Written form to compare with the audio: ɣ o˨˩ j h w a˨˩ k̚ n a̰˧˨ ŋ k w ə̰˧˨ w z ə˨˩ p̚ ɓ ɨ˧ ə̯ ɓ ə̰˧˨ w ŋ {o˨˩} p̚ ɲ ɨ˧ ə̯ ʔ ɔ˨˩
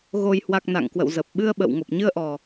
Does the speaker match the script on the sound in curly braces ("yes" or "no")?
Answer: yes